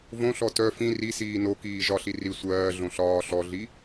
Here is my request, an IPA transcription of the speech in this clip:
v õ ɬ ɔ t œ f ĩ r i s iː n o k iː ʒ ɒ ɬ i r i sʷ ɜː ɮ õ ɬ ɒː ɬ ɔ ɮ i

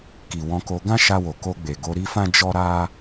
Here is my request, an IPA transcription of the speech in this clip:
k i˨ w ɔ̃˧ k o˧ ɡ ã˦ ʃ a˧ w o˨ k o˧ ɡ͡b e˨ ɡ o˧ ɾ i˦ f ã˦ d͡ʒ ɔ˦ ɾ a˦

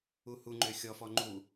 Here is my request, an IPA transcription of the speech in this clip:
u h u ŋ͡ǃ ø xʲ ɔ f ɔ ŋ͡ǃ u

